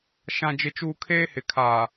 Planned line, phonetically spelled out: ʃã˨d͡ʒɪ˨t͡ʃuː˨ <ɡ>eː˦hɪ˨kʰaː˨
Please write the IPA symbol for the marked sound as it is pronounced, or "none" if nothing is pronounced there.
kʰ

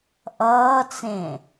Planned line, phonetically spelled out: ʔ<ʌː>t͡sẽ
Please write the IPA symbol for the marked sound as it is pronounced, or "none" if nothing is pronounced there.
ʌː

